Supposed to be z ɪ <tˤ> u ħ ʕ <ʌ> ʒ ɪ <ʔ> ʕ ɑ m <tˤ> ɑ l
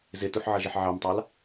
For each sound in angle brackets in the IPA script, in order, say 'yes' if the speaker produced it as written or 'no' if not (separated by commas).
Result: no, yes, no, yes